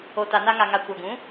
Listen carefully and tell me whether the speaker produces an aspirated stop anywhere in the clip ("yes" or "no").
no